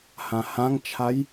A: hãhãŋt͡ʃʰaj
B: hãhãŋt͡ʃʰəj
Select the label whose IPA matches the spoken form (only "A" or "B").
A